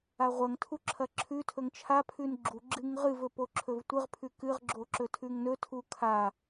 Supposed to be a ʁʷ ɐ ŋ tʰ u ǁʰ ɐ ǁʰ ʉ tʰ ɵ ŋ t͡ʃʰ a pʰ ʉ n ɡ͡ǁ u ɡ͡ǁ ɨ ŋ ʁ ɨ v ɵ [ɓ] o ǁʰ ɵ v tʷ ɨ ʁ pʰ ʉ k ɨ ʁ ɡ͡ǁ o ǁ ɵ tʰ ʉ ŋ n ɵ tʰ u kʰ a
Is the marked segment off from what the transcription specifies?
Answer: yes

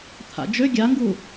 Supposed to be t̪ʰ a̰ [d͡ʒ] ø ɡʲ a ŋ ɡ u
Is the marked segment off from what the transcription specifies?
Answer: no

